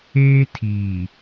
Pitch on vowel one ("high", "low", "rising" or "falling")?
high